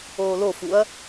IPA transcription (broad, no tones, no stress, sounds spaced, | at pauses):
oː l o f u ɐ̯